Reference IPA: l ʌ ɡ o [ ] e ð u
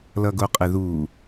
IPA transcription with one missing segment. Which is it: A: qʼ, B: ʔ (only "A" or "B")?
A